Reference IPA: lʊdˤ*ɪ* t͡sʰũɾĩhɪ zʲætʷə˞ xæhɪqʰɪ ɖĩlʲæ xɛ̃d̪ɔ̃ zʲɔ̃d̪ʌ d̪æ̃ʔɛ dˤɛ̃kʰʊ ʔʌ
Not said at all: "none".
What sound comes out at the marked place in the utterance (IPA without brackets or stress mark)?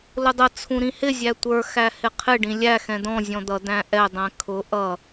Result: ə